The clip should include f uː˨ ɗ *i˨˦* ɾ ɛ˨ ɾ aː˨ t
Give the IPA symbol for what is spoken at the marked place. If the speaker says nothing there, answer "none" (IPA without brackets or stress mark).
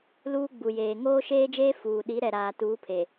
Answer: i˨˦